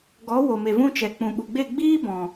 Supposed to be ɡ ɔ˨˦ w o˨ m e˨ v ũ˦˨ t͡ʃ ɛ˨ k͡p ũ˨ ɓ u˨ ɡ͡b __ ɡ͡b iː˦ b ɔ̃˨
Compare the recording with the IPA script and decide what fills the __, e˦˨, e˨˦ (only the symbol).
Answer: e˦˨